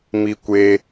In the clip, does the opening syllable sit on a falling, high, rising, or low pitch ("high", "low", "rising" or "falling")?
high